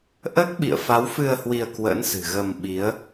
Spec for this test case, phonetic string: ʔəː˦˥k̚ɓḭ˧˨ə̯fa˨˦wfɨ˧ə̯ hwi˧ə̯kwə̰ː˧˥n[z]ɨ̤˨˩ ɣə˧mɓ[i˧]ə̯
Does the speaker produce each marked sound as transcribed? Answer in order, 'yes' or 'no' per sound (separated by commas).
no, no